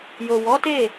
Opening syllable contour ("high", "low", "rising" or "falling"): low